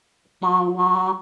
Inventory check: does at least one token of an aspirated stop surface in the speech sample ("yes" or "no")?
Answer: no